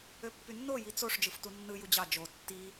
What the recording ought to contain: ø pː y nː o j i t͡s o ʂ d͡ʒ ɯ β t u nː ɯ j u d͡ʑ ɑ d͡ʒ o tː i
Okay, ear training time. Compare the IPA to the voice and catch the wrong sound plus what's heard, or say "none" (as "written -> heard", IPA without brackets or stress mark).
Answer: β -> f